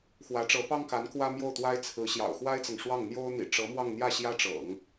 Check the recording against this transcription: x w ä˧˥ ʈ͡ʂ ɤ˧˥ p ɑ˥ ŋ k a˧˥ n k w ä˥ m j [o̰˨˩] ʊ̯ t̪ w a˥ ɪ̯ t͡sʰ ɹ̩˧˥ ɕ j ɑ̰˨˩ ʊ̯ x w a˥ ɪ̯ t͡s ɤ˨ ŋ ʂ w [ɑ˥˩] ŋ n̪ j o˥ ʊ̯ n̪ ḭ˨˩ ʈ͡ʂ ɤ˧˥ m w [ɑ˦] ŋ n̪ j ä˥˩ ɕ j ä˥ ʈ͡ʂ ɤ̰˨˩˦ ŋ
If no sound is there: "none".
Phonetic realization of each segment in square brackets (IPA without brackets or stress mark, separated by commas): o˥˩, ɑ˥˩, ɑ˥˧